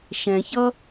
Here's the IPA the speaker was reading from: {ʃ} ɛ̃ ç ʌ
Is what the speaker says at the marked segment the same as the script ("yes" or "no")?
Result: yes